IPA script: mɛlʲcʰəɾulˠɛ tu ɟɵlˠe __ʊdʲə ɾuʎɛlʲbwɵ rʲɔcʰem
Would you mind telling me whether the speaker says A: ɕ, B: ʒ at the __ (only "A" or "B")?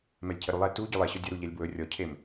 A